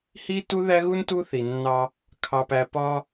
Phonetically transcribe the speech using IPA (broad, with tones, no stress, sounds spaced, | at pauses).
h i˦ t u˦ ð æ˦ ɣ u˦ n t u˦ θ i˨ nː ɑ˦ | kʰ ɑ˨ p æ˨ p ɒ˦